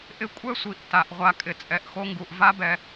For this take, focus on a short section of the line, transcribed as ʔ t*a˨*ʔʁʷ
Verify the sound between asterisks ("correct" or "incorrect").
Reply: correct